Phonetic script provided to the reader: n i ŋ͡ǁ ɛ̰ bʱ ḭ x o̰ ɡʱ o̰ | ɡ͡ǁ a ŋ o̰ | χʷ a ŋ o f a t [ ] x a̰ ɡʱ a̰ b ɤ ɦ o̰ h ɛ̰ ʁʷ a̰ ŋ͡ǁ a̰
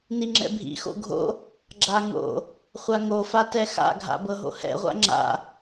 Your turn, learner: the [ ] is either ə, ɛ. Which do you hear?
ɛ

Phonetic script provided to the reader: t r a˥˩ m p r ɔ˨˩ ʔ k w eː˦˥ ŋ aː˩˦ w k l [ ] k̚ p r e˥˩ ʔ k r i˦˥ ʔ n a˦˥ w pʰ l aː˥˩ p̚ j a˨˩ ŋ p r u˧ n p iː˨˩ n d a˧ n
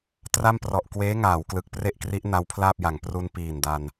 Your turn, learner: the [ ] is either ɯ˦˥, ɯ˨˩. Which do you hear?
ɯ˨˩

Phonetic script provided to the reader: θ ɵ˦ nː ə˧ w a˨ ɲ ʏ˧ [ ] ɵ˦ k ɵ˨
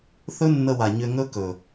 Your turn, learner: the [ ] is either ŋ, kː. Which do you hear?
ŋ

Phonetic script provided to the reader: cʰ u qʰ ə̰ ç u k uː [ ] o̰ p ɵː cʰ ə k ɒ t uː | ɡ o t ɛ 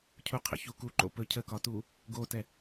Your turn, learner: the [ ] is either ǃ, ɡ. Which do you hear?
ǃ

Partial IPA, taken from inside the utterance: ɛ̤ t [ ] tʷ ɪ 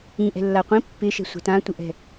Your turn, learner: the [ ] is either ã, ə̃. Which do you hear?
ã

